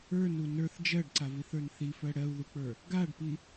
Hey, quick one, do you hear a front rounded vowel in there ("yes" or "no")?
no